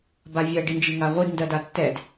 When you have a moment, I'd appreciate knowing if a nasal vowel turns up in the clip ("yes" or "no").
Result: no